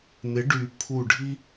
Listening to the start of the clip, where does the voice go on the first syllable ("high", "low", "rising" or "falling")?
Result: rising